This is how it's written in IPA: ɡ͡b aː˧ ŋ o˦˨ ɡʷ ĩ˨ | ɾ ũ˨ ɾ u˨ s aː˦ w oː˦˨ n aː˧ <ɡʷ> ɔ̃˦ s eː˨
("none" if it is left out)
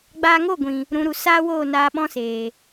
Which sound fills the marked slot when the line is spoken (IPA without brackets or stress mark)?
ɓ